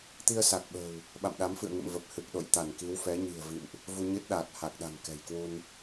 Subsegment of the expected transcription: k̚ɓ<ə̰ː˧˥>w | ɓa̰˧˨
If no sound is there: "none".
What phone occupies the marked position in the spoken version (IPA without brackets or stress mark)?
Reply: ə̤ː˨˩